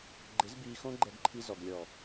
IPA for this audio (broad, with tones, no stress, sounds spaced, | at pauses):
ɡ͡ǃ ɪ˨˦ z b iː˧ x õ˦ ɡ͡ǃ ɛ˧ ɡ ǃʰ i˧ z ɔ˨ ɡ lʲ ɔ˨